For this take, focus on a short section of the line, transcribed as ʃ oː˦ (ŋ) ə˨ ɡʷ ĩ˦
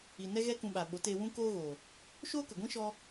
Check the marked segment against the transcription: incorrect: k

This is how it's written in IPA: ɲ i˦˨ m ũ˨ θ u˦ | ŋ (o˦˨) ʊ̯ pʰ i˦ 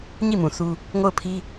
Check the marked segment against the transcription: correct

